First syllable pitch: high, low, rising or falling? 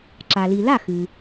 low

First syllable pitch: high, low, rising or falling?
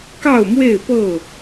falling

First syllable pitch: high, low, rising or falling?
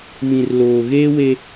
low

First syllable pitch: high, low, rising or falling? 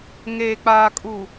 low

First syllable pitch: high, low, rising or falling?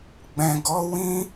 low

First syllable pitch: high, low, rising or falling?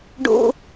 high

